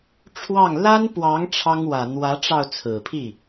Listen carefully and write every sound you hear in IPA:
ʈ͡ʂʰ w ɑ˥˩ ŋ l a˥ n p w ɑ˧˥ ŋ ʈ͡ʂʰ ɑ˥ ŋ w ä˨˩ n̪ w ä˧˥ ʈ͡ʂ ɑ˧ ʊ̯ t͡sʰ ɹ̩˨˩ pʰ i˥˩

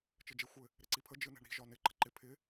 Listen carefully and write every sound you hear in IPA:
t͡ʃ ɘ d͡ʒ e xʷ ɘ | ɾ ɪ ǀ i pʰ ə d͡ʒ ɯ n e̤ ɳ ɾ i̤ ʒ ɒ n ɪ ǃ ə̤ ǃ ɪ pʰ ɪ

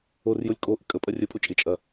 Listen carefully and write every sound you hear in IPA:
o r j o lʲ kʼ o ʔ ɪ kʼ ə pʼ ɐ rʲ ə pʼ o t͡ʃʼ ɪ t͡ʃʼ ɐ

